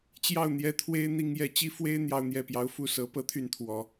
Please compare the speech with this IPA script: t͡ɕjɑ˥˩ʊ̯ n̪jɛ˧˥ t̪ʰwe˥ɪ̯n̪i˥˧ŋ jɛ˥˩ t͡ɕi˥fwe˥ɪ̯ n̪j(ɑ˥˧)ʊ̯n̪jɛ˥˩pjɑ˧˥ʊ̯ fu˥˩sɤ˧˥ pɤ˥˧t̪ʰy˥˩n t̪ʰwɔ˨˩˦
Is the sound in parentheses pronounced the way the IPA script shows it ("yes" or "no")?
yes